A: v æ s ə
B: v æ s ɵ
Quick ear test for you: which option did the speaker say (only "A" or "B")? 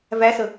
A